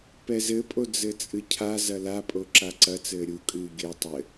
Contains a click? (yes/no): yes